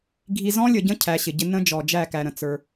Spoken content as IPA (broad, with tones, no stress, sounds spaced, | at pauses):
ɡʱ i˨ z ɔ̃˦ lʲ ə˨ ɟ ə̃˦ cʰ æ˨˦ ɕ ɪ˨ ɟ ɪ˦ n ə̃˦ d͡ʒ ɔ˨ d͡ʒ æ˦˨ k æ˨ ɾ ə̃˨ t͡s ə˞˦